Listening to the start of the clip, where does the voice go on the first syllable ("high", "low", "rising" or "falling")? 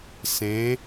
rising